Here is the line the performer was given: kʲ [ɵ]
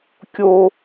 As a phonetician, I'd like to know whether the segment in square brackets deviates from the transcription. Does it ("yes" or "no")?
yes